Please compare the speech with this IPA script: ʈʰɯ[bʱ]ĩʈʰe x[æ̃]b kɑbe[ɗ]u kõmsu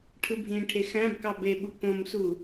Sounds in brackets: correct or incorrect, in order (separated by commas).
correct, correct, incorrect